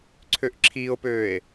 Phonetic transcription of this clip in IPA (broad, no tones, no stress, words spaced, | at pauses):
ǀʰøʔǁʰiːo̯pøːe̯